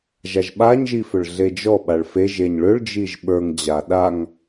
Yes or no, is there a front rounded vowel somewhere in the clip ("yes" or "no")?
yes